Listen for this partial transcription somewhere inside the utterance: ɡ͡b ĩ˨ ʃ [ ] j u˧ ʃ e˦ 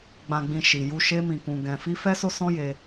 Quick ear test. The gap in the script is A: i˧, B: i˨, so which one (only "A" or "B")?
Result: B